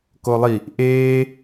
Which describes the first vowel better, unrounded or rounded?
rounded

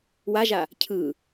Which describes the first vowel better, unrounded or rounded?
unrounded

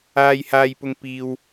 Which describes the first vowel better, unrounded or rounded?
unrounded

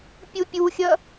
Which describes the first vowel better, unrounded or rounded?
rounded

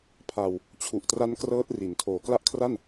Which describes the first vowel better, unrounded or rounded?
unrounded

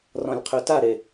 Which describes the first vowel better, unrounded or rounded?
rounded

